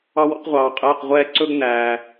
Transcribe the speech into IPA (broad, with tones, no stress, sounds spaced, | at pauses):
ɑ˥ w ɔ̰˥ q ʁʷ ɑː˧ qʼ ɛː˧˥˧ q ʁʷ ɛː˥ ǀ ɵ˥ ɡ n æː˧